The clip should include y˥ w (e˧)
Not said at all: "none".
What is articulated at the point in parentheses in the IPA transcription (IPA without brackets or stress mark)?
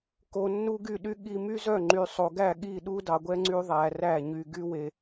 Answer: e˧